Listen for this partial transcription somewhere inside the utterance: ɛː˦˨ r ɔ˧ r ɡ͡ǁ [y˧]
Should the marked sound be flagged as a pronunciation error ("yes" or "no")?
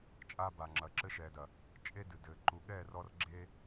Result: yes